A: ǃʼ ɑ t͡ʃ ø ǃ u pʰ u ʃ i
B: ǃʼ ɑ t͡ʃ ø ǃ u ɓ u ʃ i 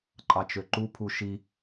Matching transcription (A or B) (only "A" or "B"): A